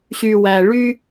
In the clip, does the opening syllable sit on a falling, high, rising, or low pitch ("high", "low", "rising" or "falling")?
low